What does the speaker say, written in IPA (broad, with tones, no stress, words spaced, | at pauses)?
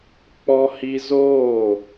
k͡pɔ˧hi˧zoː˦˨